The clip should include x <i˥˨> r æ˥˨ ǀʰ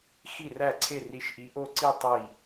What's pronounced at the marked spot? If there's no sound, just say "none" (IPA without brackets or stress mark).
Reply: i˥˨